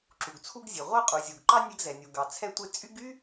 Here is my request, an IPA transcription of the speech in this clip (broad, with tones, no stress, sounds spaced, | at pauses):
ǁ u˩ ɡ t͡sʰ u˧ ɡ zʲ e˩ ʁʷ ɑ˧ qʼ u˩ zʲ u˩ ɡ ǃ ɑ˧ nʲ ɛ˧ ɡ z ɛ˩ nʲ u˩ ɡ ɑ˩ t͡sʰ ɛ˧ tʷ e˧ t͡sʼ y˥ ɡ y˥